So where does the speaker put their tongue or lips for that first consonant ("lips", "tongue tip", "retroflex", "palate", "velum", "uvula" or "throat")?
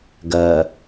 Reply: velum